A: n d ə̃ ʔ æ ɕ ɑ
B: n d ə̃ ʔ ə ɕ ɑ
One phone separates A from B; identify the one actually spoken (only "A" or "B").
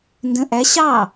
A